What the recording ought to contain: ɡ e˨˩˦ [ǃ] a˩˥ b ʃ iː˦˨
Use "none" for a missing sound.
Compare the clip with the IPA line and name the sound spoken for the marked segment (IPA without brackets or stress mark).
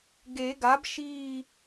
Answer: ɡ